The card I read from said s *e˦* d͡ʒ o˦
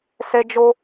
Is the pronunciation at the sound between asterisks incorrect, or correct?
correct